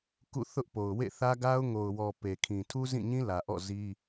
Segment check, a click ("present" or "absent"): absent